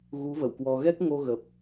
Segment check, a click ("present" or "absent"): absent